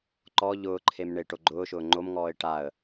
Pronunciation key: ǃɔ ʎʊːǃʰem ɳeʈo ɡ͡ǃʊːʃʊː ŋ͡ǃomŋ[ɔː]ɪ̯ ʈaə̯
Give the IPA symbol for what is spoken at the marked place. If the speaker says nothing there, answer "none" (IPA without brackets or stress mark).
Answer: ɔː